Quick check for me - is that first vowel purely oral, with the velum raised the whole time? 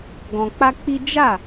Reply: no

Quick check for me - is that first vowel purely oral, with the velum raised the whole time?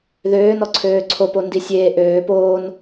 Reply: yes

